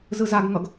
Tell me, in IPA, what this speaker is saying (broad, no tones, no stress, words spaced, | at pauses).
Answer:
zɯzaɡŋʌɡ